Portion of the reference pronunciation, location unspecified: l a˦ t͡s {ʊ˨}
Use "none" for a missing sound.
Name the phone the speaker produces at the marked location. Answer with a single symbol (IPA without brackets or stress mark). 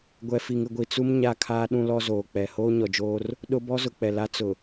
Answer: ʊ˨